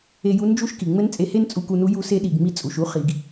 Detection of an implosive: present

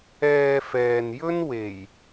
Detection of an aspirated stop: absent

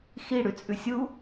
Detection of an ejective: present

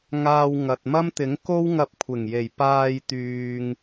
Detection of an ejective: absent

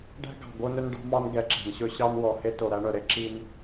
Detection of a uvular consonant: absent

